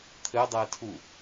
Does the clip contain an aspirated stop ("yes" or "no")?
yes